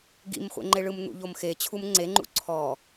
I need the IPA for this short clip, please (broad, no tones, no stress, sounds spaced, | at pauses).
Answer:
ɡ ḭ m χʷ ḛ ŋ͡ǃ e ɭ ɯ m n̪ ṵ ʎ o m x e t͡ɕʰ u m ŋ͡ǀ e ŋ͡ǃ ṵ ǀʰ ɔ